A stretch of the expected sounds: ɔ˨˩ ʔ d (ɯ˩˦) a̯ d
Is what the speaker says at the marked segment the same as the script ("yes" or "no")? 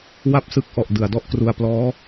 no